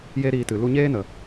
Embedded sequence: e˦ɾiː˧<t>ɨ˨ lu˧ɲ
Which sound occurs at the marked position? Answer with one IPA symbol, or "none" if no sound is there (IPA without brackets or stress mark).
t